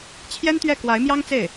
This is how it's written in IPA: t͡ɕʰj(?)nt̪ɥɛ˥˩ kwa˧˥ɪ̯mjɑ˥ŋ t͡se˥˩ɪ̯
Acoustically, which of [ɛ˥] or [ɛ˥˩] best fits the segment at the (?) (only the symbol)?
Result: ɛ˥